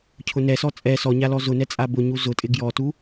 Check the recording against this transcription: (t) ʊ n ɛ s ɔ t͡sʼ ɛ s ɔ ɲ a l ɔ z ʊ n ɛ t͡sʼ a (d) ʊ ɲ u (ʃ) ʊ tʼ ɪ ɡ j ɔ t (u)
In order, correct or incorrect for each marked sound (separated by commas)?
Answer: incorrect, incorrect, incorrect, correct